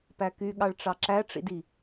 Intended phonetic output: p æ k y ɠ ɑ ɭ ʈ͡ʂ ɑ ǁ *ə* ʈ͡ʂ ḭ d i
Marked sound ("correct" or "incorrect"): incorrect